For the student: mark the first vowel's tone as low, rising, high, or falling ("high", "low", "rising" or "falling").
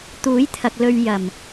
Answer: rising